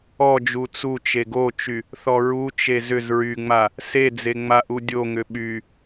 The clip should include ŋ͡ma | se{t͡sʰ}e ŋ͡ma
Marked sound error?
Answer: yes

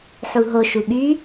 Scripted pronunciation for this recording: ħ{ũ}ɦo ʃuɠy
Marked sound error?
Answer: yes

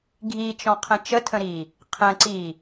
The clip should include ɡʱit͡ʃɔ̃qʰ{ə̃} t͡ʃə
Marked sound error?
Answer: no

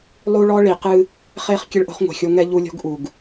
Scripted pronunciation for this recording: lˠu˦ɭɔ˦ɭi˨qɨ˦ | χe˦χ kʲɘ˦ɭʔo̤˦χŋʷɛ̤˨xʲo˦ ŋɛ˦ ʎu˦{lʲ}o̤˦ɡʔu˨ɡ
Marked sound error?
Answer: no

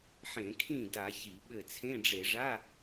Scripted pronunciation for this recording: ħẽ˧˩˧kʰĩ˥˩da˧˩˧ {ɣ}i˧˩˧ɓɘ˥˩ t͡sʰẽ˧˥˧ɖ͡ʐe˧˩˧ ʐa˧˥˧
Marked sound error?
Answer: yes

